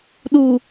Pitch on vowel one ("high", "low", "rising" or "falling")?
low